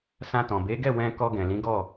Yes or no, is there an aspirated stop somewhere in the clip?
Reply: no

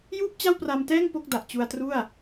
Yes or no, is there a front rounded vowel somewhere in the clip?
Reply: no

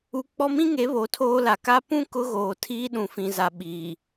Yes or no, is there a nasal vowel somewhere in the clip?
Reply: yes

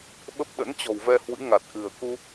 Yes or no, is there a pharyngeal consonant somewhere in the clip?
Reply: no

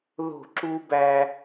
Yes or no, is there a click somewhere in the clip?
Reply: yes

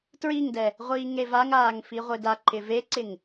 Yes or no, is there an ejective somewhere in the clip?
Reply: no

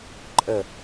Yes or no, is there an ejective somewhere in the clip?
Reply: yes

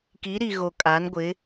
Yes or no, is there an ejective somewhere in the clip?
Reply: yes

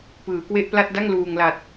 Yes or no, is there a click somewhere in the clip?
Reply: no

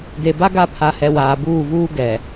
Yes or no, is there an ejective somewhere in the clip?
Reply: no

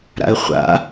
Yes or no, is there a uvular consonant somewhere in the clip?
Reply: yes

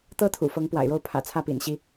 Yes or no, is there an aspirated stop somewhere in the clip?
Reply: yes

